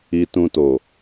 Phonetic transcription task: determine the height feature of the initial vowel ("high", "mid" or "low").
high